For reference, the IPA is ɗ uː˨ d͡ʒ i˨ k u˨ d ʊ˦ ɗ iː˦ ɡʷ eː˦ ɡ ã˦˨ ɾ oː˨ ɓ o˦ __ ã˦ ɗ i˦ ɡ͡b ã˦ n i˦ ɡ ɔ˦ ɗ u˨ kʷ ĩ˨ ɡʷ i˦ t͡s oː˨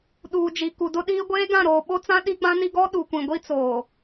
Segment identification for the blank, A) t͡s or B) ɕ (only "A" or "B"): A